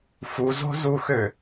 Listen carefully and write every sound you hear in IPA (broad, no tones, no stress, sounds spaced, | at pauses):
f u z o̤ z u x ø